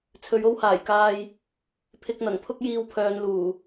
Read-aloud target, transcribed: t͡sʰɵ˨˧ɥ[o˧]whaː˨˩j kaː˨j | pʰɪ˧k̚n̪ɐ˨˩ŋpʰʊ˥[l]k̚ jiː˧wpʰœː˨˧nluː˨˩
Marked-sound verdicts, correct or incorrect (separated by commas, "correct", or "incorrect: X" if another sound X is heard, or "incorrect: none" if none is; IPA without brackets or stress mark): correct, incorrect: none